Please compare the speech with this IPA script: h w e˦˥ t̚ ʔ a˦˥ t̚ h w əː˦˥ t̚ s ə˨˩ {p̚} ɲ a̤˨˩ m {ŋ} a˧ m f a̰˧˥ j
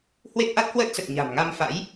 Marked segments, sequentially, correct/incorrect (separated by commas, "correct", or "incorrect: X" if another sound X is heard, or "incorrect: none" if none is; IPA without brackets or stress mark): incorrect: t̚, correct